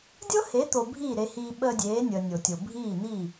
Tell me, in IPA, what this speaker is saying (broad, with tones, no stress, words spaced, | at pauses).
dʲɤ˦he˨˦t̪o˨ bʱiː˦˨ɾe˧hiː˧ ɓəː˧dʲeː˨˦nʲəː˨ nʲo˨tʲo˨ bʱiː˦˨n̪i˦˨